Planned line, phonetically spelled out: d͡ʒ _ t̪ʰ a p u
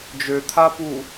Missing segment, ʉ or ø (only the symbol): ø